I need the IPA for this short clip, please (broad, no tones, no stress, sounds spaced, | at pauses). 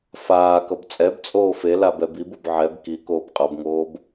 f aː k ʌ b t͡sʼ ɛ b t͡sʼ oː f e l a b ɛ b i b o b ʕ ɛ b k i k oː b qʼ ʌ b ŋ oː b